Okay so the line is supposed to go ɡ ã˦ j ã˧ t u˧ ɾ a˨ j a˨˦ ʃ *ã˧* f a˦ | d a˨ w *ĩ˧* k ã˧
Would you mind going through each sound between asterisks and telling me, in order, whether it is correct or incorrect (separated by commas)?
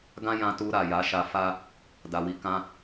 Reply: incorrect, incorrect